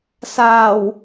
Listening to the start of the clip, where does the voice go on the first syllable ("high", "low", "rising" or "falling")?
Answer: low